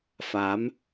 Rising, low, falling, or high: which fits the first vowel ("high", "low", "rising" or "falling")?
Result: rising